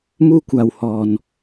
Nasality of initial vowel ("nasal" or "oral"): oral